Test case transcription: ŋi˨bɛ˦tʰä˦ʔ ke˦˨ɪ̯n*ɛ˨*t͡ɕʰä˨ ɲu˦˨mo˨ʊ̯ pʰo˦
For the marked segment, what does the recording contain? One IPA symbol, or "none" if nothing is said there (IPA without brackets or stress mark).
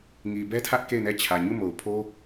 ɛ˦˨